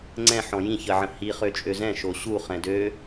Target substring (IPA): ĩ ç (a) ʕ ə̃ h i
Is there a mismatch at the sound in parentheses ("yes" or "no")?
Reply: yes